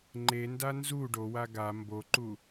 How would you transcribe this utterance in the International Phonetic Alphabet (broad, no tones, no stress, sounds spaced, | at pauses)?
ŋ͡ǃ e n d a n z u ɖ o w a ɡ a m b o ǃ u